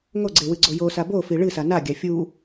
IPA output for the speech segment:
ŋoɡ͡ǀewɨɡ͡ǀo josa bofi ɭɨsa naɡʲa fʲu

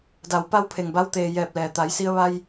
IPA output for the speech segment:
da˩˧wpa˧wpʰe˩ŋ ba˧wt̪eː˩ jɛː˧˩p̚lɛː˩t̪a˩˧jsi˧ə̯ ʋa˧j

